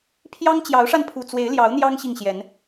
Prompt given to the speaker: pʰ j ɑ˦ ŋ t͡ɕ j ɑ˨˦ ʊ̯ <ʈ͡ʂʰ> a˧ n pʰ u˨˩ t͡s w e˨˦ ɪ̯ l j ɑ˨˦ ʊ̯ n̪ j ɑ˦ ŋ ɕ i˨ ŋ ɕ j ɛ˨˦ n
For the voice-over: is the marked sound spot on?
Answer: no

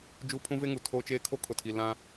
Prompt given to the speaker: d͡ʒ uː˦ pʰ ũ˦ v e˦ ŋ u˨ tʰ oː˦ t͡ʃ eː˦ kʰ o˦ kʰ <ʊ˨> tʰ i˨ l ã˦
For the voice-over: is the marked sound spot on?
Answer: yes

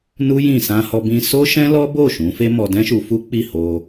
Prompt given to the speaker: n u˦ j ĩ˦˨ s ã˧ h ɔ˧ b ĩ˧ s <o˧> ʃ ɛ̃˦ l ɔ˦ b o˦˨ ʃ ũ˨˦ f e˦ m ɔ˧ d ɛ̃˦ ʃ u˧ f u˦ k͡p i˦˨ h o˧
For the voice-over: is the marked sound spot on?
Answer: no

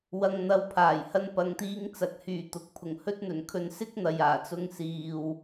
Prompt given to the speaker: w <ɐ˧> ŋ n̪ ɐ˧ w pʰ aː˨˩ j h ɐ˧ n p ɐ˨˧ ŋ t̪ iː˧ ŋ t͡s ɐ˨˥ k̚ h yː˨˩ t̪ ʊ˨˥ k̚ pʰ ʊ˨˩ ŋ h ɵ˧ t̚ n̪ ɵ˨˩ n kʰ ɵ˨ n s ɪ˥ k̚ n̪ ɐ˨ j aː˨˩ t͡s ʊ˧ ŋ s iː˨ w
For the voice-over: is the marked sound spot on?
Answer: yes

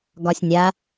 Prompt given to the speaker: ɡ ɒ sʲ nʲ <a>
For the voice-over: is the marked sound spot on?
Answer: yes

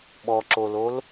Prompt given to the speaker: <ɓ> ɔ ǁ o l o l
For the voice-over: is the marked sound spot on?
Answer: yes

